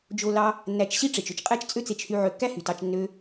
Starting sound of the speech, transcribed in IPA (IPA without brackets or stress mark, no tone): d͡ʒ